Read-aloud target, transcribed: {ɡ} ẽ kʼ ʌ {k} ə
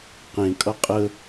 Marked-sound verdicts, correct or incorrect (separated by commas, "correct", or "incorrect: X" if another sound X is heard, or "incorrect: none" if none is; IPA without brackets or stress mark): incorrect: q, incorrect: qʼ